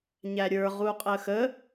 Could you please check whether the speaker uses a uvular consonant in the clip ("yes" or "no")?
yes